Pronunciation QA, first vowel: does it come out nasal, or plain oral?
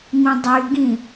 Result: nasal